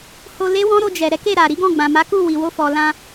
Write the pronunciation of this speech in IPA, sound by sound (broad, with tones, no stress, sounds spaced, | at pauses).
h o˧ l e˦ w ɔ̃˦ ɾ o˧ d͡ʒ ɛ˨ ɾ ɛ˨˦ k e˦˨ ɾ a˨ ɾ i˨˦ ɡ ɔ̃˦˨ ɡ͡b ã˨ m a˨˦ k u˦˨ w i˨ w o˧ f ɔ˨ l ã˧